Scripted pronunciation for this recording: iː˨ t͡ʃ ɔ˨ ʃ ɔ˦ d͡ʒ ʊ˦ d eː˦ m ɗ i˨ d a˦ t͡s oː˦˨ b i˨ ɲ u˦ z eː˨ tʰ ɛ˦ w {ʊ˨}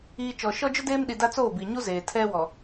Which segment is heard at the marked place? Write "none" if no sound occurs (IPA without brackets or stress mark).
ɔ˨